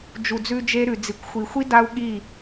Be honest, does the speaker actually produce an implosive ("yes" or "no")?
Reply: yes